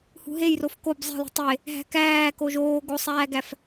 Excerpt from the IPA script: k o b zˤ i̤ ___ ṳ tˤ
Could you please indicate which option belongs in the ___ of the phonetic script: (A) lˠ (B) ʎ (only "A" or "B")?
A